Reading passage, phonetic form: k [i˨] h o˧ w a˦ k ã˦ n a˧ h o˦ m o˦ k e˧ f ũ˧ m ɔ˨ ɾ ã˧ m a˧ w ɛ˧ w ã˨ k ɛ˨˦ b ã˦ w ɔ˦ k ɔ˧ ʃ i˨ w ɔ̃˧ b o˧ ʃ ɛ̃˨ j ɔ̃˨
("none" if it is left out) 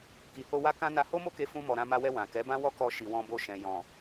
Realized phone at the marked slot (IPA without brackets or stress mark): i˨